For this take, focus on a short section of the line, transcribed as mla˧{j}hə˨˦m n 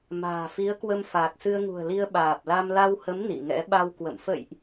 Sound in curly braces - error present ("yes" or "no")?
yes